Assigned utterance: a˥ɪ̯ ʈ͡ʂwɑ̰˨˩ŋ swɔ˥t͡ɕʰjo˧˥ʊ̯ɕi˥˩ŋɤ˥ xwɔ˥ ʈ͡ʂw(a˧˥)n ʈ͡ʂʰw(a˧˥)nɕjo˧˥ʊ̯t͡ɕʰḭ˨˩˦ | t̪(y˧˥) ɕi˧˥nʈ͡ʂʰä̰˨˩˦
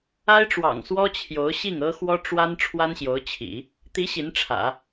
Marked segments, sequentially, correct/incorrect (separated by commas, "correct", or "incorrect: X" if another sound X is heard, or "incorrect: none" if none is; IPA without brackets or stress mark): incorrect: a˥, incorrect: a˥, incorrect: i˧˥